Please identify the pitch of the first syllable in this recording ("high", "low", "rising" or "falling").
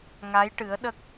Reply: rising